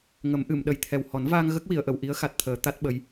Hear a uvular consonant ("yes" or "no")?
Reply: no